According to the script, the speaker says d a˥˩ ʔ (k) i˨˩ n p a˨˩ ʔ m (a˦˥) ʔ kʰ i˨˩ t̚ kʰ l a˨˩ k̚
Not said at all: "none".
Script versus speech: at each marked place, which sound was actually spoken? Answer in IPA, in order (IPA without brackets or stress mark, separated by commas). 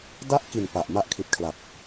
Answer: k, a˦˥